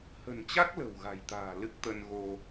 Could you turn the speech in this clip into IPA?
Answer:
h ə̤˨˩ n t͡ɕ a˦˥ k̚ l ə̤˨˩ w ɣ a̤˨˩ j t̪ a̤ː˨˩ l ɨ˦˥ k̚ t̪ ə˧ n ɣ o˧

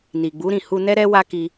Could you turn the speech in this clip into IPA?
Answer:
n i˨ ɡ͡b u˨˦ ɾ ĩ˦˨ h u˧ n ɛ˦ ɾ ɛ˦ w a˦ k i˧

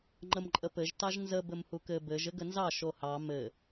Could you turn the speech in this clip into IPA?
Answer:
ŋ͡ǃ ə m ǃʼ ə p ɘ ʒ t ɑ ʒ n z ə b ɘ m h u k ɘ b ɘ ʒ ɘ ɡ ə n z ɑ ʃ o h ɑ m ɘ

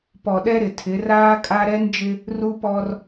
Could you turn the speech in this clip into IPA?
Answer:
p ɔ˨ ɗ ɛ˦ ɾ ɪ˨ tʰ ɪ˨˦ r aː˦ kʼ a˦ ɾ ɛ˦ n d͡ʒ ɪ˦ | r u˦ p ɔ˦ r

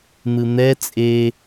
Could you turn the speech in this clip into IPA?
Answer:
n̪ ɯ n̪ ɛ t͡sʼ e

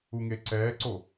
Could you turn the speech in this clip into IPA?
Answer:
u ŋ e ǀ ɛː ǀ o

